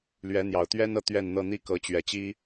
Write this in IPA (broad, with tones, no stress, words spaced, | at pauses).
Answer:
lɥɛ˨˦n̪jɑ˨˩ʊ̯ t̪ɥɛ˦nɤ˨ t̪ɥɛ˥˨nn̪ɤ˥˨ n̪i˦kɤ˨˦t͡ɕɥɛ˨˩t͡ɕi˦